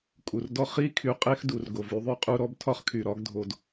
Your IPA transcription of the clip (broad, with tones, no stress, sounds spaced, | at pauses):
kʼ u˩ r d ɔ˦ χ i˥ kʰ y˨ qʼ e˥ x d u˩ r ɡ o˩ v y˦ ðˤ y˦ qʼ u˦ ɾ ɔ˦ b tʰ ɒ˥ χ kʰ y˩ ɾ ɒ˥ ɡ dʱ o˨ d